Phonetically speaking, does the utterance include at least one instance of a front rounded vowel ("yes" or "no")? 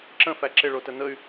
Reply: yes